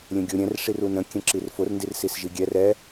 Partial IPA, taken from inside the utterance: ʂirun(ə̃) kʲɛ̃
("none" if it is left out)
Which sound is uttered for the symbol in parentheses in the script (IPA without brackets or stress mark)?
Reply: ə̃